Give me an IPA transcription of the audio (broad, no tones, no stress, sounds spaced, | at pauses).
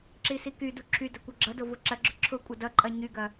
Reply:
ǁ i s i k y d u ǁʰ y d ɐ kʷ ʌ ɡ͡ǁ ʌ d o v ʊ ǁ ɐ ɡ͡ǁ ʊ ǁʰ ʊ kʷʼ ʌ d ʌ ǃʼ ɐ ɲ y ɡ ɐ